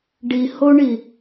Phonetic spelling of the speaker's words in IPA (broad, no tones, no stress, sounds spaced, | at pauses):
ɖ i h o ɳ i